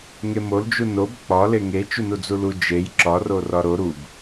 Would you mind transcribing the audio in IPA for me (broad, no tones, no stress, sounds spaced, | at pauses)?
ŋ e m o l d͡ʒ u n o b k͡p ɒ l e ŋ e t͡ʃ u n u d͡z u l u d͡ʒ e j ǁ ɒ r o r ɒ ɾ o ɾ u b